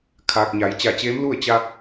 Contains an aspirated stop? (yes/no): yes